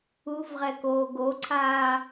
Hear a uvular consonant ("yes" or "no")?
yes